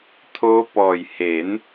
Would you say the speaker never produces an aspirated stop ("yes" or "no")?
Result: no